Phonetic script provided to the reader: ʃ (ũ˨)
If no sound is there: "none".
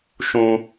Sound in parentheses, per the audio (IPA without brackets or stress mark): ũ˦